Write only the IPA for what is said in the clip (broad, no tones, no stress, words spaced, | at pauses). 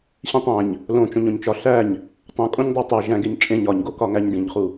ɕĩtˤæ̃ɲ | lõt͡ʃõɲ õɲt͡ʃɒ ɬæɲ | tˤũkʼõɲ dˤætˤæ ʒæ̃ɡeɲ t͡ʃʼẽɲ ɒɲɡokɒŋæɲ ɖĩɲχu